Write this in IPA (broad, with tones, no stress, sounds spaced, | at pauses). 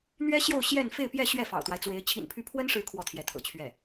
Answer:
n̪ ɥ ɛ˥ ɕ j o˥˧ ʊ̯ ɕ j ɛ˥˧ n f e˥˧ ɪ̯ p j ɛ˥˧ ɕ ɥ ɛ˥˩ f ɑ̰˨˩ ʊ̯ t̪ w a˦ ɪ̯ t͡s w e˧˥ ɪ̯ t͡ɕʰ ḭ˨˩ n pʰ y˧˥ pʰ w ə˥ n ʂ ɻ̩˧˥ kʰ w ɔ˥˩ t̪ʰ j ɛ˧˥ t̪ʰ ɤ̰˨˩ t͡ɕʰ ɥ ɛ˥˩